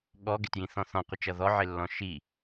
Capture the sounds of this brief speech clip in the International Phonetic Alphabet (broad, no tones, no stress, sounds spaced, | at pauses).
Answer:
ɠ ɔ ɡ ɪ t j ĩ θ ɔ̃ θ ɔ̃ qʷ ɪ t͡ʃ ʌ ð ɔ ʕ ɪ lː ɔ̃ ʃ i